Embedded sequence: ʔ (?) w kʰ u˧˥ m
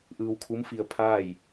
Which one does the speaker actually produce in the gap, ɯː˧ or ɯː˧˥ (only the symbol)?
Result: ɯː˧